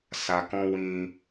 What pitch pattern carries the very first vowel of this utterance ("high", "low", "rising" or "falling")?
low